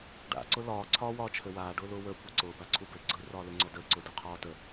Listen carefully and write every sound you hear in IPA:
ɖ a̰ ǀ ʊ l ɒː ǀʰ ɒː w ɒː t͡ʃʰ ø w aː ɖ ʊː l ʊː w əː kʷ a ǀ ʊː b a ǀʰ u b ø ɡ͡ǀ ɯ r ɒː l ø ŋ͡ǀ ɔ d əː ǀ ʊː d ʊː qʰ ɒː t ə

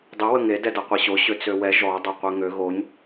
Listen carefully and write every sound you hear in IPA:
dˤ ə w ə ŋ e d ɛ d a qʷ i ɕ o ɕ ø t͡s ø w ɛ ʒ ɔ dˤ o qʷ e ŋ ø ɣ o ɲ

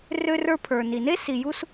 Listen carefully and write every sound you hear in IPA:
r ø˦ r ə˞˦ pʰ ə˞˨ n i˨ n e˦ s i˨ j u˧ s

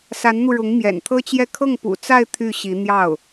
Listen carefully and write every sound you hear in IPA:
s a˧˥ n n̪ u˧ ɻ ʊ˧˥ ŋ m j ɛ̰˨˩ n t̪ʰ ɤ˥ t͡ɕ j ɛ˥˧ kʰ ɤ˥˩ ŋ p ṵ˨˩ t͡s a˥˧ ɪ̯ t̪ʰ y˥˩ ɕ i˧˥ n̪ j ɑ˥˩ ʊ̯

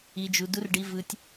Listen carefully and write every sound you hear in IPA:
i˨ d͡ʒ u˨ d u˨ r ɖ i˨ v ɯ˨ tʲ

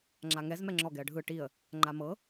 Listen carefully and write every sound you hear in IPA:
ŋ͡ǁ a ŋ ɛ z m ɛ ŋ͡ǁ ɔ ɡ ɛ ə̯ ɖʱ ɯ ʈ i ə̯ | ŋ͡ǃ a m ɤ

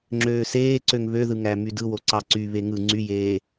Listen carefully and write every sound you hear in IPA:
ŋ͡ǁ øː s eː ǀ ø ŋ β ø ð ɯ ŋ æ m y d ɯ w o ǀ ɑ ǀ y β e ŋ ɯ ŋ͡ǀ y j eː

